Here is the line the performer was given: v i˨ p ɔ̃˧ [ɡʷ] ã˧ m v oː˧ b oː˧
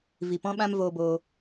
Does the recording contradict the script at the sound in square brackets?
yes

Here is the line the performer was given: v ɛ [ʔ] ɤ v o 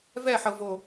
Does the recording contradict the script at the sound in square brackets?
yes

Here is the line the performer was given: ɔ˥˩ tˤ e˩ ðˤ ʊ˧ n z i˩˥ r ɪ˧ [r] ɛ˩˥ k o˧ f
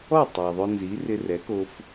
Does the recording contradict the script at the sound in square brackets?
no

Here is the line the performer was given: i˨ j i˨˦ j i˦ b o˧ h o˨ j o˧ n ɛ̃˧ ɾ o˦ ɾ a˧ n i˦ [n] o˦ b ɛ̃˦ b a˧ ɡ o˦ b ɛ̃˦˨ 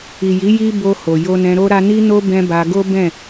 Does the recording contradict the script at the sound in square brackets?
no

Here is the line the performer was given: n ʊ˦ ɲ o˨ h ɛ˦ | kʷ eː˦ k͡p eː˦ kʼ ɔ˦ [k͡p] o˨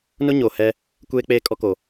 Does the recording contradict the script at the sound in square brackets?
yes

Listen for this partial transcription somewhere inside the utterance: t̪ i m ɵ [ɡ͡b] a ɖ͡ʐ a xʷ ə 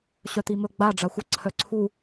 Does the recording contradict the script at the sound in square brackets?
no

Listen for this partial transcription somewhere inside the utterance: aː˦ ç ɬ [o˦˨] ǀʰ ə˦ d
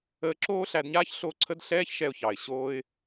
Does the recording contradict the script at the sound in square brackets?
no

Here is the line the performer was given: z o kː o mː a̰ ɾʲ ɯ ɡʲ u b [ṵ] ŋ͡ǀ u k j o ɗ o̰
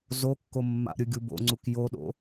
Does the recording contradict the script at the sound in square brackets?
yes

